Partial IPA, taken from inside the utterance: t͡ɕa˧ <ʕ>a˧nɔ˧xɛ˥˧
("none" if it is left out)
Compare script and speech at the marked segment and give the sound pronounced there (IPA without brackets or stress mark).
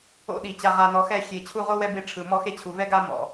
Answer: ʁ